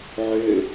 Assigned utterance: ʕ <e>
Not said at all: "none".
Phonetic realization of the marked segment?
ø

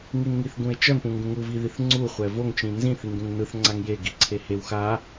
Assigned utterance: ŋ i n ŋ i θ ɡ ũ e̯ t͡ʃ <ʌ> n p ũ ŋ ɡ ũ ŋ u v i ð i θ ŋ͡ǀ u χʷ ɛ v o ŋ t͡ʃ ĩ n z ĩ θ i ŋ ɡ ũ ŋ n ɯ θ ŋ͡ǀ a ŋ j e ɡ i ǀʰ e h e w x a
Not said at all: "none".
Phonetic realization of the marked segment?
ʌ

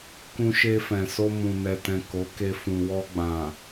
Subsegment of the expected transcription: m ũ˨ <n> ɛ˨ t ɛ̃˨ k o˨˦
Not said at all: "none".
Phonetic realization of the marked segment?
n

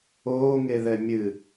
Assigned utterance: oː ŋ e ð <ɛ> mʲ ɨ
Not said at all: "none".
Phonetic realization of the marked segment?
ɛ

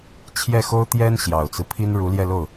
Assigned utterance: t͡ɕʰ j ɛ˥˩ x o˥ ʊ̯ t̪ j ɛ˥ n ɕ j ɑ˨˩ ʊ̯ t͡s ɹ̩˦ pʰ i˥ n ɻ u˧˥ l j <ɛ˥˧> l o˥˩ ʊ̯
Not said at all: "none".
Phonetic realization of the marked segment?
ɛ˥˧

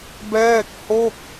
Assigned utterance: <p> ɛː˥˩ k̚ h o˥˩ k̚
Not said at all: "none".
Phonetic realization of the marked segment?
b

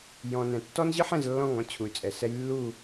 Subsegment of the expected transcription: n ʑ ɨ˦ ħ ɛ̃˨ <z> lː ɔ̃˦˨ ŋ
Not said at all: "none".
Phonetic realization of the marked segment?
z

